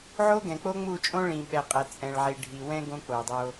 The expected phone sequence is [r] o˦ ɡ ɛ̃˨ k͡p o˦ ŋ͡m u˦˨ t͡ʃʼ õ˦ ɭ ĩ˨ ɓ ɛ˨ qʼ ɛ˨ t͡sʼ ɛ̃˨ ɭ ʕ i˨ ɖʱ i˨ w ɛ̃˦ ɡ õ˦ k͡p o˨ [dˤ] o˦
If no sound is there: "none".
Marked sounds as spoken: ʕ, dˤ

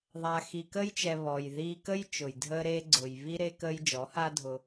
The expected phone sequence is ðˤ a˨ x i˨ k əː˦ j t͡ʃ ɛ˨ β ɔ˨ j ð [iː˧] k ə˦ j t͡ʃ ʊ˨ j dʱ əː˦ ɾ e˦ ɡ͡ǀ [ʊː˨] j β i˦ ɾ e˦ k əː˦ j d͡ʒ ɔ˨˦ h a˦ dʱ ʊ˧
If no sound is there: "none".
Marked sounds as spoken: iː˧, ʊː˨

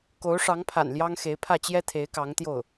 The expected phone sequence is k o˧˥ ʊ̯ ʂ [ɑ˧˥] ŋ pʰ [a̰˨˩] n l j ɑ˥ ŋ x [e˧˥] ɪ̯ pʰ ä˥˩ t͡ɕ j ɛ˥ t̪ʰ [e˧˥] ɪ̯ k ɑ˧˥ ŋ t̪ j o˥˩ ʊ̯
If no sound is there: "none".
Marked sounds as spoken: ɑ˧˥, a̰˨˩, e˧˥, e˧˥

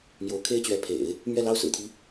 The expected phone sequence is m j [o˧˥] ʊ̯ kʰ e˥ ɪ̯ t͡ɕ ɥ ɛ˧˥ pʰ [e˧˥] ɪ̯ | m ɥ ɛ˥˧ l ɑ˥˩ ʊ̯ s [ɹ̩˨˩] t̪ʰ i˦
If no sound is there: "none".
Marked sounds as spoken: o˧˥, ḛ˨˩˦, ɹ̩˨˩

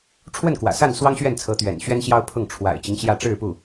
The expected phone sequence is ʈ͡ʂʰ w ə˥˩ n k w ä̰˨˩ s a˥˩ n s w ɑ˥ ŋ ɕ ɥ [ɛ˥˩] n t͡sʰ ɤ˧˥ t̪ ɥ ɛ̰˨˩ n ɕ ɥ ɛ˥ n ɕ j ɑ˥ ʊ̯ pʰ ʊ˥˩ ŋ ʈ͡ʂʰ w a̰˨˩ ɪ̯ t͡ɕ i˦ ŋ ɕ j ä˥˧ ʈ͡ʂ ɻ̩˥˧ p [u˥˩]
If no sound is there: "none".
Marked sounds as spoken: ɛ˥˩, u˥˩

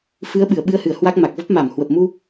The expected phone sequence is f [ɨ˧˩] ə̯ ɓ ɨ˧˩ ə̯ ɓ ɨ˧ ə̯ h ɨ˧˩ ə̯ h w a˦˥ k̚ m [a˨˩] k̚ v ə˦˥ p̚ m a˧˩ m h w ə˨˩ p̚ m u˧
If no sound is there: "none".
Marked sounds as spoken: ɨ˨˦, a˨˩

